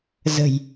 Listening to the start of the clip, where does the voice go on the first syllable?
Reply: low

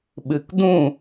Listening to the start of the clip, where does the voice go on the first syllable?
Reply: low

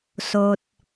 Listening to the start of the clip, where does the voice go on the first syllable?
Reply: low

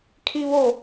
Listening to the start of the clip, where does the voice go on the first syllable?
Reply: high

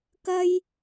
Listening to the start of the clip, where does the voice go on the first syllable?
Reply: high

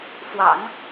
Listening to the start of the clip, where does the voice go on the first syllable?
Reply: low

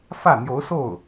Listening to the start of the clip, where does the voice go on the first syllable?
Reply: falling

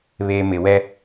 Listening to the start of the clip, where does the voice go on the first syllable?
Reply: low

